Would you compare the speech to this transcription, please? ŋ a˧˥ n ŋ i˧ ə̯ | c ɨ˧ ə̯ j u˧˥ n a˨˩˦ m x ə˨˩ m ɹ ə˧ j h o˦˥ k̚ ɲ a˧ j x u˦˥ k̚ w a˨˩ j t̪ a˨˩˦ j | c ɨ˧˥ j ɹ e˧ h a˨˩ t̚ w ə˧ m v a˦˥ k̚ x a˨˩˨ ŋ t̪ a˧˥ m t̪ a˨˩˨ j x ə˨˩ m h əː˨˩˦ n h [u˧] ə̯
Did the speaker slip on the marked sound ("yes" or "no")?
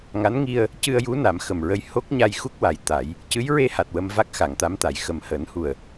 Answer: yes